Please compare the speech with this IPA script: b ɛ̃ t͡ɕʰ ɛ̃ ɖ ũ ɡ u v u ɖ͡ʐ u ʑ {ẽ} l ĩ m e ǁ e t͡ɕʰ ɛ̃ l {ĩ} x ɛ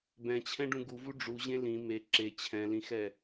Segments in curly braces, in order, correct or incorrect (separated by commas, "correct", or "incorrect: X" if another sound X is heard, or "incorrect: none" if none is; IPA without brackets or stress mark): correct, correct